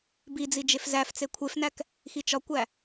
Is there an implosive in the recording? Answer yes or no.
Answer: no